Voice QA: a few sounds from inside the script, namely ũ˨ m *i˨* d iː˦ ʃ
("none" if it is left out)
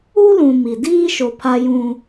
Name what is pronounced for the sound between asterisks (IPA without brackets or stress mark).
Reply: i˨